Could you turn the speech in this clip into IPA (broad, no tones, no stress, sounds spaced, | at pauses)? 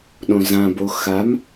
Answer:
ɗ õ z ã b o x a m